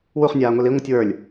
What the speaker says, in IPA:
w u χ nʲ aː ŋʷ i l i ŋʷ ɯ tʲ w ə˞ lʲ

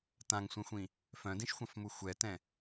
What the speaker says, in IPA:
t ã ŋ sʷ ɛ̃ xʷ ĩ | f œ̃ d ĩ ʃ xʷ ɑ̃ f m u xʷ ɛ t ɛ̃

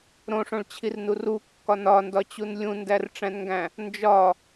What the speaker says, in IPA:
ɾ õ ʂ õ ɭ t͡ɕʰ i r n u r u kː ɒ n ɒ n d ɒ t͡ɕ u n lʲ ũ n d æ r ʈ͡ʂ æ̃ n ŋ ɡ æ̃ | n d͡ʒ ɒ

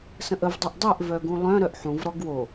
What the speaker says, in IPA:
s ə̃ ʔ ə v dˤ y ʔ dˤ œ ʔ v œ ɡ ũ lˠ œ̃ ɾ œ ʔ ħ ũ v ɾ ɔ ɡ w o

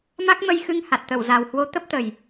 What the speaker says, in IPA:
m a˦˥ k̚ m ə˧ j x ɨ˧ ŋ h a˨˩ t̚ t̪ ə˧˩ w z a˨˩ w h w o˨˦ t̪ ə˦˥ p̚ t̪ ə˨˩ j

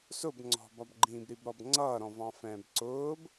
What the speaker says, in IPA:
s ʊ b ŋ͡ǀ ɔ̤ b ɒ b ɡ͡ǃ ĩː b ɾ i b ɾ ɔ b ŋ͡ǀ ʌː ɾ ɔ̃ v ɑ̃ f ɛ̃ː b ǀ ʊː b

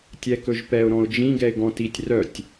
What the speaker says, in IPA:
tʲ ɛ k ɵ ʒ p ɛ ʊ̯ ɾ ɔ̃ ʊ̯ d͡ʒ ĩ ɡ ɛ ɪ̯ ɡ ɔ̃ t i tʲ r œ tʲ

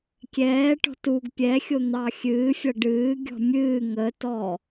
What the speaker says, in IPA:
kʲ ɛː ʈ ɔ̤ t u ɡ pʲ ɛ xʲ o n̪ ɑ xʲ ɨː fʲ ʌ ɖ ɨː ɡʲ ɔ̤ mʲ ɨː ŋ ə t ɔ

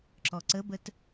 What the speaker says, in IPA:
ǁ ɔ ǀ ə b ə t

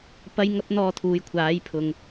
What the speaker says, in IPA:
p ɐ˥ j ŋ ɐ˥ p̚ n̪ ɔː˧ t̪ʰ uː˨ j kʷʰ aː˨˥ j pʰ ʊ˨˧ ŋ

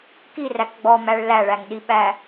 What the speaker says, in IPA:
k i r æ k ɡ͡b ɔ m æ ɭ l æ ɭ æ ŋ ɗ i ɓ æ

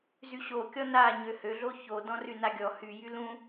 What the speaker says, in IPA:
z y ɕ o kʲ ɔ n a ɲ ø h ø ɮ o ç o d ɔ̃ r y n a ɡʲ ɔ h y j y l ũ

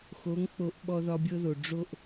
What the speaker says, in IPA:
x o˨˦ ŋ k͡p o˧ ʔ ɓ ɔ˧ ð ɒ˧ bʲ ɤ˧ ð o˨ ɖ͡ʐ o˧ ʔ

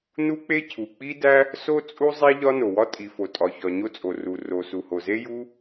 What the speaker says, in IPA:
n u˥ k͡p e˥ cʰ u˩ k͡p i˥ d æ˥ | s o˥ t͡sʼ u˥ zˤ e˥ ʎ ɒ˥ n o˩ w ɒ˥ tʼ i˩ f o˩ tʼ ɒ˩ ç ɒ˩ ɲ o˥ t͡sʼ o˩ r u˩ r o˩ s u˩ h o˩ z e˥ j u˥

